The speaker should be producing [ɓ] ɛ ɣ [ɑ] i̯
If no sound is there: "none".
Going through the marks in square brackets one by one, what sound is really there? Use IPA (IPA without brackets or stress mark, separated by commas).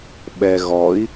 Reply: ɓ, ɔ